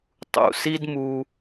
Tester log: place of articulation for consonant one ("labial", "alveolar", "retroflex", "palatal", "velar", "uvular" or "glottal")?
alveolar